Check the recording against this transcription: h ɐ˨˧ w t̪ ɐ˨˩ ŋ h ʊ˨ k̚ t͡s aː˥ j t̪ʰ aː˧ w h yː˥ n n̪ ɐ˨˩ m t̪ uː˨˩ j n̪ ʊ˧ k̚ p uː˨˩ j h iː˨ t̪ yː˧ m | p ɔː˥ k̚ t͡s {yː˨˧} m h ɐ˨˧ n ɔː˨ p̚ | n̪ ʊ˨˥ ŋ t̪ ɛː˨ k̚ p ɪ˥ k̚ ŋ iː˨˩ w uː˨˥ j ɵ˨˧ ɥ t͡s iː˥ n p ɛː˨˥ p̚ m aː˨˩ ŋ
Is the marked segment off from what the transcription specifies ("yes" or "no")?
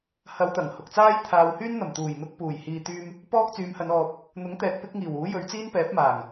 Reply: no